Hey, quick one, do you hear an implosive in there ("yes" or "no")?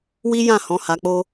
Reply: no